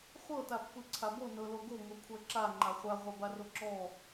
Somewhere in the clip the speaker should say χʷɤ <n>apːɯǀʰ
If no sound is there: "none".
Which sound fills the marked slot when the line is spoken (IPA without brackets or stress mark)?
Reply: t